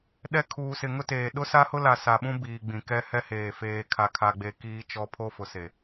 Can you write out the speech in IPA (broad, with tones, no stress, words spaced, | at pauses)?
ɗɛ˦ kʰuː˨sɪ˨ŋʊ˦teː˨ ɗʊ˦sa˦hʊ˦la˨ sa˨ɓũ˦ biː˨ɡ͡bĩ˨kɛ˦ hɛ˦heː˨ feː˨kʰa˨kʰa˨ɡ͡be˨ kiː˦t͡ʃɔ˦ pʰo˦fʊ˨se˨